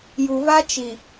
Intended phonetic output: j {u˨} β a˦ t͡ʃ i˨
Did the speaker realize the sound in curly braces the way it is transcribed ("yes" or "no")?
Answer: yes